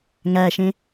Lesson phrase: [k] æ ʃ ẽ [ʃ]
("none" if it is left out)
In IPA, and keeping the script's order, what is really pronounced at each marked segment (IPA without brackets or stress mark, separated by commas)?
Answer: ŋ, none